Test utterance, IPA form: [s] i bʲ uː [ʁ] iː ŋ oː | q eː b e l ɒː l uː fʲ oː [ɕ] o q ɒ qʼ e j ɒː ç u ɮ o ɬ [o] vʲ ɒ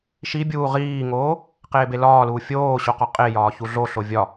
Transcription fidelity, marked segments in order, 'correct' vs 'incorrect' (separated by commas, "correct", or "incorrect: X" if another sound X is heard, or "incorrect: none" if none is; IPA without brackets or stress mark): incorrect: ʃ, correct, correct, correct